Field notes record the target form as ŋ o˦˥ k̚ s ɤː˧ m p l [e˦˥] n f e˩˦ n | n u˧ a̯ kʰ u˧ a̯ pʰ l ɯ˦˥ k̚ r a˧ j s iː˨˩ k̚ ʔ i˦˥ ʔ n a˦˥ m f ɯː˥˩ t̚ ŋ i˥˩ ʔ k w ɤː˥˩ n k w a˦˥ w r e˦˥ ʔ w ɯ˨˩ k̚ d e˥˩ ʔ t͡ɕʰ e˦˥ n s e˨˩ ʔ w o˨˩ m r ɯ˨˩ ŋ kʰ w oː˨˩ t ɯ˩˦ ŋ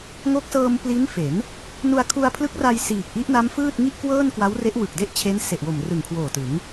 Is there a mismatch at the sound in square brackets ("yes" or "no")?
yes